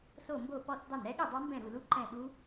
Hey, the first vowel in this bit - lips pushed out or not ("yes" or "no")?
yes